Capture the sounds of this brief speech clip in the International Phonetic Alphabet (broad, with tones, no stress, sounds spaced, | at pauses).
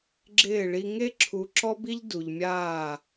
ɡ͡ǁ ɪː˦˨ ɭ i˦ ŋ e˦ ǁʰ u˨ ǁ ɔ˦ b i˦ ʎ d u˨ ʎ mʲ aː˦˨